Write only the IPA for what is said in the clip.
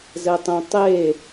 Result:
z ɛ tˤ ẽ tˤ e

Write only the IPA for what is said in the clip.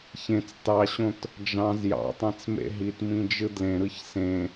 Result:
ç ẽ t͡s t ɑ ɕ õ t | d͡ʒ ɑ̃ z j ɑ̰ tˤ æ̃ t͡s m ḛ ɦ i t m ĩ d͡ʒ ɯ d l ẽ ɾ ɯ ç s ẽ

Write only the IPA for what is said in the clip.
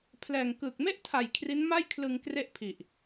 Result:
pʰ l ɛː˨˩ ŋ k ɯː˨˩ k̚ m e˥˩ ʔ tʰ a˨˩ j kʰ r i˦˥ n m a˥˩ j kʰ l ɯ˧ ŋ k r e˥˩ ʔ pʰ i˨˩ ʔ

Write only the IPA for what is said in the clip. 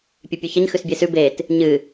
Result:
pʲ ʉ pʲ ʉ ç ɐ ɲ x ʉ s bʲ e s ʉ b e t | ɲ ɨ

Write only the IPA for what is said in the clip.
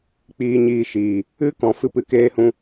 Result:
k͡p iː˧ ɲ iː˧ ʃ iː˨ | ɨ˦ k ɔ̃˧ f ɨ˦ p ɨ˧ k eː˧ h ũ˧

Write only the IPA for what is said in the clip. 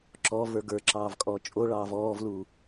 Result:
ǁ ɔ v ə˞ ɡ ə˞ ǁ ɑː v kʼ ɔ t͡ʃʼ o ɭ ɑː v ɔː v l u

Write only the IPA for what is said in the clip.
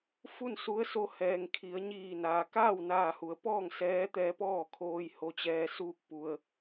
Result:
f u˥˨ n s u˧˥ ə̯ s o˧ h ɛː˩ ŋ kʰ i˩˧ ə̯ ɲ iː˧˩ n aː˩ k aː˥˨ w n aː˧˩ h u˩˧ ə̯ p ɔː˥˨ ŋ s ɛː˧˥ t̪ ɛː˧ p ɔː˥˨ kʰ oː˧ j h o˧ t͡ɕ ɛː˧ s uː˥˨ k̚ p u˧ ə̯

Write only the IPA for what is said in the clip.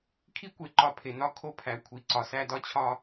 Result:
kʰ i˥ kʷ e˩ ǃ ɒ˨ pʰ e˩ n ɒ˦ kʰ o˥ pʰ æ˩ kʷʰ i˨ ǀ ɒ˩ s æ˦ d ɒ˦ t͡ɕʰ ɒ˦

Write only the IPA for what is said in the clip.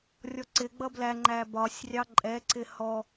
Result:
rʲ ɔ ǀ ɪ ɡ͡b ʌ b l æ ŋ͡ǃ æ b ɒ sʲ rʲ ɑ ǃʼ ɛ ǀ ɪ h ɔ

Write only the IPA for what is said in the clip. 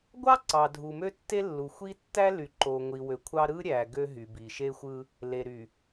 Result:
ɡʷ ɑ˦ ǀ ɑ˨ dʱ u˨ m ø˦ tː e˦ lː u˨ xʷ i˦ tː æ˦ l y˨ ǃ o˨ ŋʷ i˨ w ø˨ kʷʰ ɑ˦ ɾ ɯ˦ ɾʲ æ˨ ɡ ø˦ ɦ y˨ b i˨ ʃ e˦ xʷ ɯ˦ | l e˨ ɾ y˨

